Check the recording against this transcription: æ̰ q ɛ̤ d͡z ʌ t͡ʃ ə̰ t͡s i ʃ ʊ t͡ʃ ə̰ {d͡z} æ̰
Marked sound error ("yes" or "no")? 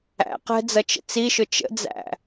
no